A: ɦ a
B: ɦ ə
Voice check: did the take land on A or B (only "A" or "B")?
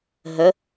B